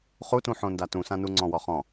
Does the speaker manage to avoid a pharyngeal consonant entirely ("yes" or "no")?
no